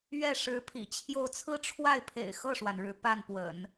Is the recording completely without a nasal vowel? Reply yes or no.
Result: yes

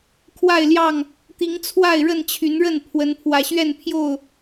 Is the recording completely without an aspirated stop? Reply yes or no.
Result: no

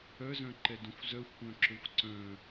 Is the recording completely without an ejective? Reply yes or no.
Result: yes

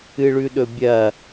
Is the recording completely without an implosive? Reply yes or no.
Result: no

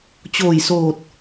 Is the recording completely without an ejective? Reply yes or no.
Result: yes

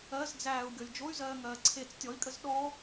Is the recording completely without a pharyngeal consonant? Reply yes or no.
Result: yes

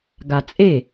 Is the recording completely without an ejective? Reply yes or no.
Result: no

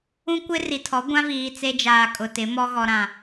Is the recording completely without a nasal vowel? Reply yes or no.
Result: no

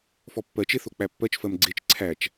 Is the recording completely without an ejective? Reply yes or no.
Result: yes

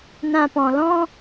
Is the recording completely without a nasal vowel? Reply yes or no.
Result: no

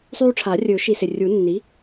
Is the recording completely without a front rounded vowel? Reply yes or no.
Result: no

